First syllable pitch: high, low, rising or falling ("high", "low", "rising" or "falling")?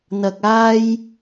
low